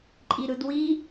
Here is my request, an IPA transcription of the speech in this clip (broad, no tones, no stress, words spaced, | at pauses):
ǃʼiɾɯdwi